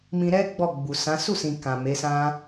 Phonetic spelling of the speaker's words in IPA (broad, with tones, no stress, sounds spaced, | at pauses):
m ĩ˧ ɾ ɛ˦ ɡ͡b ɔ˦˨ ɡ͡b u˨ s ã˨˦ s u˦˨ s ĩ˨ k ã˨ m e˨˦ s ã˦